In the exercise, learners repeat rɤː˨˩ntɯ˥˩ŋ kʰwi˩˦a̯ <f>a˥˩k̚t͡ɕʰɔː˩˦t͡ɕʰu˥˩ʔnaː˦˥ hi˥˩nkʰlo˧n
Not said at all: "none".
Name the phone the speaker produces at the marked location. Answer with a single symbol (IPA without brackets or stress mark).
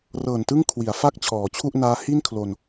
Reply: f